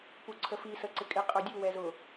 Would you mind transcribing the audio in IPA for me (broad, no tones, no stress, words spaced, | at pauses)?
puǀʰəfi sə ǀɪkʼɪ qʼə˞dʲu wɛzʊ